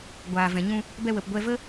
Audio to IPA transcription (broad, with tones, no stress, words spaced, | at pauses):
ɡʷaː˨vɛ̃˨ɲũ˧ | bɛ˧wə˨p ɡʷɛ˧və˦